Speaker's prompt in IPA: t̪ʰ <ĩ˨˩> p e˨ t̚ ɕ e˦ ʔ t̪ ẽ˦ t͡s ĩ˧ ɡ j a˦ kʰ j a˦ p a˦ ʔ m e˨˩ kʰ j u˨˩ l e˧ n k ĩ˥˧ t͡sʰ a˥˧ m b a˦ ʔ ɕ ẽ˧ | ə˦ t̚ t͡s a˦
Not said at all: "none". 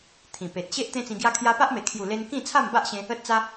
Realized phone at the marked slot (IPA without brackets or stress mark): ĩ˨˩